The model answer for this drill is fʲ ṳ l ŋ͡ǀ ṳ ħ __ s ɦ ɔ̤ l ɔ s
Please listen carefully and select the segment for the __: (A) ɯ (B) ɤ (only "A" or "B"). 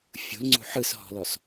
A